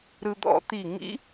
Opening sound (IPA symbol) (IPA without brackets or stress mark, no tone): ɾ